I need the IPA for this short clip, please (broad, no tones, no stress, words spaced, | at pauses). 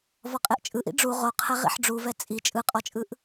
vɔqʼeʔt͡ʃʼɯʔḭ ɖ͡ʐu ʁoqʰɛ ʁḭħɖ͡ʐuvɛ t͡sʼi t͡ʃʼɯqʼɔt͡ʃʼɯʔ